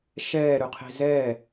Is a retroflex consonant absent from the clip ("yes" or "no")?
yes